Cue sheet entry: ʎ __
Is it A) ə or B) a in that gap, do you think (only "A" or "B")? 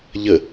A